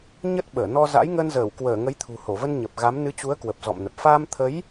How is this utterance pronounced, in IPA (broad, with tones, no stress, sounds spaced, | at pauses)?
ɲ ə˦˥ t̚ ɓ əː˧˩ n ɔ˧ z a̰˧˥ j ŋ ə˧ n z əː˧˩ w k w əː˧˩ ŋ ə˨˦ j t̪ʰ ṳ˨˩ h o˧˩ v ə˧ n ɲ ə˨˩ p̚ ɣ a˨˦ m n ɨ˨˦ t͡ɕ u˨˦ ə̯ k w ə˨˩ p̚ z ɔ̰˧˨ m n ə˨˩ p̚ f aː˧ m t̪ʰ ə˨˦ j